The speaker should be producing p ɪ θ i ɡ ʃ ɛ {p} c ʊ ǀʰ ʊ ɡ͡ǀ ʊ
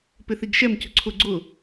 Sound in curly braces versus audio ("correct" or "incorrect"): incorrect